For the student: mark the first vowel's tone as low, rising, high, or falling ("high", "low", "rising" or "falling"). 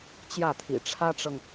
falling